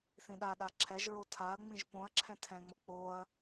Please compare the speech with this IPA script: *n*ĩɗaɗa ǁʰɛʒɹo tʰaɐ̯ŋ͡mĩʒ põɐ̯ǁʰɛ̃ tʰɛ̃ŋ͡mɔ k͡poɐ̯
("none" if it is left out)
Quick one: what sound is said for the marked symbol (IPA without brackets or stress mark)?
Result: θ